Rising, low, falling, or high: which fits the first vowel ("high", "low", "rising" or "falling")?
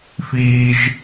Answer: high